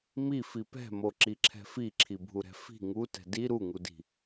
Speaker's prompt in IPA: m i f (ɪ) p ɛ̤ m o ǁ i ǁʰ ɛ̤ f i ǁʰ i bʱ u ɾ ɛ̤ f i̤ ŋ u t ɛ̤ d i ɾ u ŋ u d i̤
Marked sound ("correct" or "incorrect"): incorrect